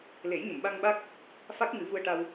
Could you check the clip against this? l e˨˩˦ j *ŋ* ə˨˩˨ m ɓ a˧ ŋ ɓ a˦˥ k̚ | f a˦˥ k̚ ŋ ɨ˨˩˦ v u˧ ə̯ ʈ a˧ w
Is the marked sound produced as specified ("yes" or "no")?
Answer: no